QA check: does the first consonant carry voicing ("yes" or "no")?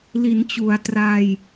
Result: yes